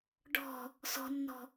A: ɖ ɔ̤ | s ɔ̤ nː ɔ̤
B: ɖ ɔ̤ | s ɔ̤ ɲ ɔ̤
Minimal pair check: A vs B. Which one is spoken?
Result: A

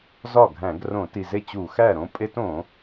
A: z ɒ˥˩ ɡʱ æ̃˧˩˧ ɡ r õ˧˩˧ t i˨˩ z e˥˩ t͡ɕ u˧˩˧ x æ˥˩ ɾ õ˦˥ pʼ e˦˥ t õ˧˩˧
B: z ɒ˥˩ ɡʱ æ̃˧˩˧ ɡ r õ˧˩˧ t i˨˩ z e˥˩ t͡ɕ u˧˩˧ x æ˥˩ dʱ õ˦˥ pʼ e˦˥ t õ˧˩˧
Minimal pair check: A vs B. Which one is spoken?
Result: A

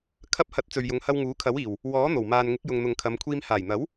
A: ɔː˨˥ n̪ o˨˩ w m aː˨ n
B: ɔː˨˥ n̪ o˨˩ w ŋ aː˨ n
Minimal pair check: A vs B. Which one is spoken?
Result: A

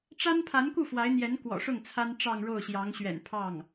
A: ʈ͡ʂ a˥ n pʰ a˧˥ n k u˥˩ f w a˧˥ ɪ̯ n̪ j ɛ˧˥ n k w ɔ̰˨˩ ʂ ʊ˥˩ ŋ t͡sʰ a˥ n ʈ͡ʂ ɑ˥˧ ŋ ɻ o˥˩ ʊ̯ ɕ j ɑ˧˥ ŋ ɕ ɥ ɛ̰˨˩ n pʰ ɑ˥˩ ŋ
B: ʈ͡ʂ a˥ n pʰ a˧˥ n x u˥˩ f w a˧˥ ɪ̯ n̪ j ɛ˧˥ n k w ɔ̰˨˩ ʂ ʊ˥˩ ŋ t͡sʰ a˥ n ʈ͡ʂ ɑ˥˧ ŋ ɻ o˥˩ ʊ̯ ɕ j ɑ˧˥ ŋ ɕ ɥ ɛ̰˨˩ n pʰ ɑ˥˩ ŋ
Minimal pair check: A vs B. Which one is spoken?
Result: A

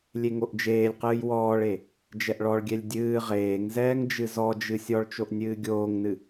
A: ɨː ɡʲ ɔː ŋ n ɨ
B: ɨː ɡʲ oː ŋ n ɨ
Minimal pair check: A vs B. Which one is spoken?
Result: B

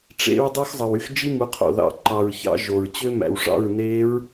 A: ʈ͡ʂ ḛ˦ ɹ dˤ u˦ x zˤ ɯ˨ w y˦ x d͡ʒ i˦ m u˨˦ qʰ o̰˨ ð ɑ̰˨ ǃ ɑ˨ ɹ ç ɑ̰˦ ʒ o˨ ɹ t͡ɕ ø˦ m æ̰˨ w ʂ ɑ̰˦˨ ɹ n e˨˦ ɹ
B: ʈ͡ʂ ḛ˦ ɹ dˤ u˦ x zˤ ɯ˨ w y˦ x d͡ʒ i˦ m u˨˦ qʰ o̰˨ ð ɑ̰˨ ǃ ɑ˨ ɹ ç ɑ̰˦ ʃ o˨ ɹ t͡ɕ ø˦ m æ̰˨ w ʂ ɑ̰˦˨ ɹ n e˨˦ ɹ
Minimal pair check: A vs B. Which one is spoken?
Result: A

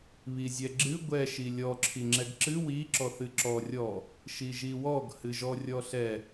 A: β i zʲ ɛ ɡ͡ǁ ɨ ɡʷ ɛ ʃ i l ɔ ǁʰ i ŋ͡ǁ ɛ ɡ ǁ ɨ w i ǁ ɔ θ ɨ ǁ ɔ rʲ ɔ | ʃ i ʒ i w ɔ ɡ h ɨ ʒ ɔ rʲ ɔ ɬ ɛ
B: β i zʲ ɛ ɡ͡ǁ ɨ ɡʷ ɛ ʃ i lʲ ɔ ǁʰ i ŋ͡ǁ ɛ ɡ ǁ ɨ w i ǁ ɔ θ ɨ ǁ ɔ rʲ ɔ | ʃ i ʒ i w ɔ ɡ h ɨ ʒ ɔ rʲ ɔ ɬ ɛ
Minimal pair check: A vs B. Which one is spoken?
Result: B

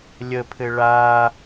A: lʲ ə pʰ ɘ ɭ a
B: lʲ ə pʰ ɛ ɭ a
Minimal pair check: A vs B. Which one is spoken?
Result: A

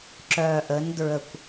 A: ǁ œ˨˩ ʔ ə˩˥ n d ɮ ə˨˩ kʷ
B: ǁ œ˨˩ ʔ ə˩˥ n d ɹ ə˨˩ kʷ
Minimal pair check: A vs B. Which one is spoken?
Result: B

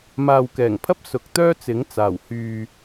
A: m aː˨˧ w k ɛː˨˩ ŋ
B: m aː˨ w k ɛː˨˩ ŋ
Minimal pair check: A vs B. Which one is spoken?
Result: B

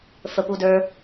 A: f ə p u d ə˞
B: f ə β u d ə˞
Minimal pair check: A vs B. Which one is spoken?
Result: A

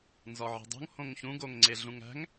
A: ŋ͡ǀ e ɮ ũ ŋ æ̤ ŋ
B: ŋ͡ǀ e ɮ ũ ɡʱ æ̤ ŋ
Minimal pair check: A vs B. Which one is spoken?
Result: A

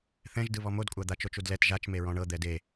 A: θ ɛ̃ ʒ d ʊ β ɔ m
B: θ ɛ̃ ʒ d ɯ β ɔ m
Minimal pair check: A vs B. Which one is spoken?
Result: B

